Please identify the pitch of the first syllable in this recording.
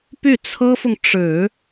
falling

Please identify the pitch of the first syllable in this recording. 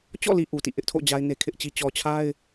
falling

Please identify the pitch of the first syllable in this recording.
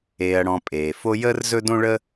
low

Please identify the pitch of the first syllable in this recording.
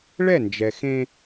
falling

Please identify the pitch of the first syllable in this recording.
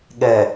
low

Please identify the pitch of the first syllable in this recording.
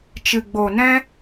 low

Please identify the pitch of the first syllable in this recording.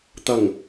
low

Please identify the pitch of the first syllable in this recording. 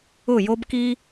falling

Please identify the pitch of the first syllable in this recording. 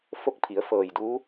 falling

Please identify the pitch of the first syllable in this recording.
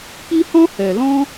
high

